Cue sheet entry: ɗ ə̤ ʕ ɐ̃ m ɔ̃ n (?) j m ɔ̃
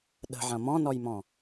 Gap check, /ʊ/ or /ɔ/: ɔ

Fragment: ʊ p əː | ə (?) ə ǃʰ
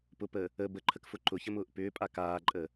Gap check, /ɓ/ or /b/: b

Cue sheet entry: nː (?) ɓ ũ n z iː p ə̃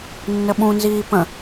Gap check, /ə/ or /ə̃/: ə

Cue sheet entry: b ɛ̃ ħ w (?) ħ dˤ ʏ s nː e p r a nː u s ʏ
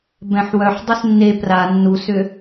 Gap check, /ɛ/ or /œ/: œ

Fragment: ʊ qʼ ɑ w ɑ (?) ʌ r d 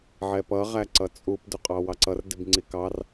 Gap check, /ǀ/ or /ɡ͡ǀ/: ǀ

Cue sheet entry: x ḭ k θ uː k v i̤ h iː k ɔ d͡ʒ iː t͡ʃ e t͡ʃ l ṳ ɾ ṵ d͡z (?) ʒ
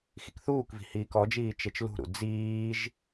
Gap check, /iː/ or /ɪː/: iː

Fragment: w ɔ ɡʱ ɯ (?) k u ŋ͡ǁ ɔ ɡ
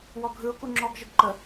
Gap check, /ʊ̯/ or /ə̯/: ʊ̯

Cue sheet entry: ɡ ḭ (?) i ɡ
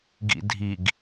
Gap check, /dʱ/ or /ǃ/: dʱ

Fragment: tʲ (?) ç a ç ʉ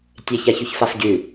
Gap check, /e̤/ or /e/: e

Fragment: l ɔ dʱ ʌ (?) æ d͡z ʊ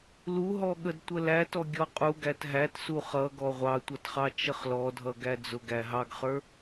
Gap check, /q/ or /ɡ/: ɡ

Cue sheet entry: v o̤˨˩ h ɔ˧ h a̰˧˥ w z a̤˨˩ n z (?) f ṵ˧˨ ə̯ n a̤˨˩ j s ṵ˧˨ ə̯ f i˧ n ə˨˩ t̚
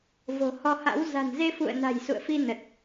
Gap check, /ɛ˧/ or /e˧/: e˧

